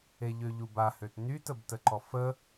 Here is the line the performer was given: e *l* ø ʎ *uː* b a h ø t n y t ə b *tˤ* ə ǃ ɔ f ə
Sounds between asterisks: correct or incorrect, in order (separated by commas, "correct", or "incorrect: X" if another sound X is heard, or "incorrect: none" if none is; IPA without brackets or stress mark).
incorrect: ʎ, incorrect: u, incorrect: t